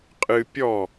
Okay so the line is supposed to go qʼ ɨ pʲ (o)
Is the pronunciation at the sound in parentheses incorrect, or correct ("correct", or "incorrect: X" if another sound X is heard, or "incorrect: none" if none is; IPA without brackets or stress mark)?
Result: incorrect: ɔ